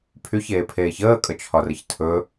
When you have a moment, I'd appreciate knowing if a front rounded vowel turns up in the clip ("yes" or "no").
yes